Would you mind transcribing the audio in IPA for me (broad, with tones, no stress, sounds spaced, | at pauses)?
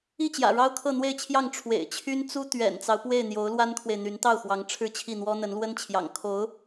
i˥˩ t͡ɕ j ä̰˨˩ ɻ ɑ˥ ʊ̯ kʰ ɤ˥˧ n̪ w e˥˧ ɪ̯ t͡ɕʰ j ɑ˥˩ ŋ ʈ͡ʂʰ w ḛ˨˩ ɪ̯ t͡ɕʰ y˥ n t͡s u˥ t̪ ɥ ɛ̰˨˩ n t͡s ɑ˦ ʊ̯ p w e˥˩ ɪ̯ n̪ j o˧˥ ʊ̯ l w a˥ n kʰ w e˨ ɪ̯ n̪ y˧˥ n t̪ ɑ˥˩ ʊ̯ x w ɑ˧˥ ŋ ʈ͡ʂʰ ɻ̩˥˧ t͡ɕʰ i˥˩ n̪ w ɔ˥ n̪ ə˧˥ n l w ə˥ n t͡ɕʰ j ɑ̰˨˩ ŋ kʰ o˧˥ ʊ̯